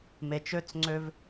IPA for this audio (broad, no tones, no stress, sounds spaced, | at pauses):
m e t͡ʃ ø t͡s ŋ͡ǀ ø v